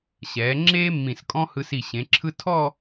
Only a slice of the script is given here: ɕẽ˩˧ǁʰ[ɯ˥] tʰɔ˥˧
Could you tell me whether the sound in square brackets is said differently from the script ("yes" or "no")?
no